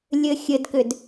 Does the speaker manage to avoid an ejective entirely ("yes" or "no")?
yes